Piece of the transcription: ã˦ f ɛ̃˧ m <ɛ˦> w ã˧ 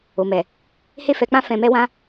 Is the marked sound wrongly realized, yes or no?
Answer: no